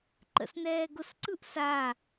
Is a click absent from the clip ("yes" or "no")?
no